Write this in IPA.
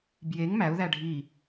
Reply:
bjeŋ mæʊ̯ðæ ɖʱi

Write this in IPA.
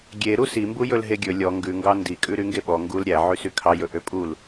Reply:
ɡʲeɾu simbu jɵlɦeɡʲɵ lʲɔ ŋɡʉŋɡɑ ndikʼʉ ɾyŋɡeɓɔ ŋɡul ɾʲæ ʕysykʰɑ jɵʔøpʼul

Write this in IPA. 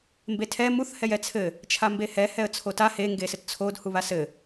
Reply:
mbetʰɛ muθ hɛjɛt͡sʰɘ | t͡ʃʰambehɛ hɛə̯t͡sʰota he ŋɡesɘtt͡sʰod huβasɘ

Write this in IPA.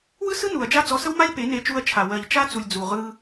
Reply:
wɯ˦sɯ˦ nu˨ɐ̯d͡ʒa˦ d͡zɔ˧sə˦wma˦lʲ pe˨˦ ne˧t͡ʃu˧ɐ̯t͡ʃʰa˨ wɜ˨ʎt͡ʃa˦t͡su˨lʲ d͡zu˨ʁɯ˧

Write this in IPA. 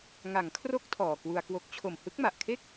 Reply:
ŋa˩˦ŋkʰro˦˥k̚ tʰɔː˨˩kwu˧a̯kwo˦˥k̚ t͡ɕʰo˨˩mhɯ˦˥k̚ma˨˩ʔkʰe˥˩k̚

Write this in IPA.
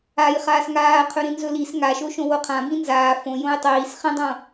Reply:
ajχaːs ŋaːqʰɵ ɾĩnzɵlis ŋaʃo ʃõwoqʰã bĩnzaː fõ jõjtˤiːs χĩdˤõ

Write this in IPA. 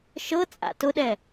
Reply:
ʃɤt͡sʼa̰ tʊɗɛ

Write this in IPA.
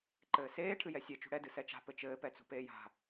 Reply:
ǃɘːseː ʈʰɨjɛsʲe t͡ʃṳɽɛ dɨsɛt͡ʃa̤ pɘt͡ʃɘː pɛt͡sṳpeːja̤

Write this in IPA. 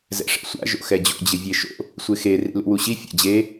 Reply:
zɛ̰ʂɛ̰sʷa̰ ʒo̰xɛd͡ʑo̰ d͡ʑɪvʲeʃo̰ | sʷɪxe rḭlṵwuɕi fʲa̰d͡ʑe

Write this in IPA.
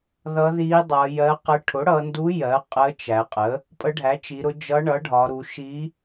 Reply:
ðʌ˧˥ði˧˥dˤʌ˩˧ jɜ˧˥qə˧˥ ʈʰʊ˩˥ɽʌ˩˧ndu˧˥ jɜ˩˥ qʼə˧˥ t͡ʃæ˩˧qʼə˩˥ | pʼə˧˥ɖʱæ˩˥t͡ʃi˩˧ɾʊ˧˥ d͡ʒʌ˧˥ɳʌ˩˥ɖʱɒ˩˧ɾu˩˧ ʃi˧˥

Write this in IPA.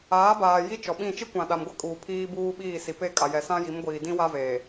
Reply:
aː˨˦baː˨ ji˦t͡ʃɔ˨ɓĩ˦˨ t͡ʃi˦kʷã˨ ɗa˨mɡʷɛ˦kʼuː˨ pʰiː˦buː˦ɓiː˦˨ si˨ pe˦˨kʼa˨jɛ˨sã˦ ji˨˦mɡʷiː˨dĩ˦ wa˦ve˨

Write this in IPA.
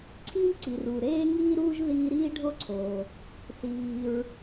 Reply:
ǀʰiː˥ǀi˩ruː˩ ɾeː˥ŋiː˥ɾuː˥ʒ ðiː˥ ɾiː˥ɖʱo˥ǀʰoː˩ | θiː˩ɹ

